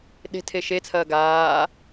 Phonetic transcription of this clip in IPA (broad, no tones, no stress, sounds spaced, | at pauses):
ɗ e̤ tʰ e ʃ e t͡sʰ ɐː ɡ aː